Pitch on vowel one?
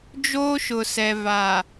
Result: high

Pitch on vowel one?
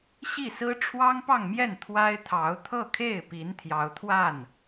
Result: falling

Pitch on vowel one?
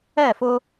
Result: falling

